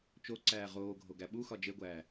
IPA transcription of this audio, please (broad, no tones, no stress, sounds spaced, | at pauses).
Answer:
t͡ʃ o ǀ æː ʁ oː ɡʱ o ɡ æ ɓ u x ɒ d͡ʒ e ɡʷ æː